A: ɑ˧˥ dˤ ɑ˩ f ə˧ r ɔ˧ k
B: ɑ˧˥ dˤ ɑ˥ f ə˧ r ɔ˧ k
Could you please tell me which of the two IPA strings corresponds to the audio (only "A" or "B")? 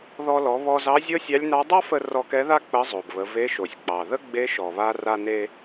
B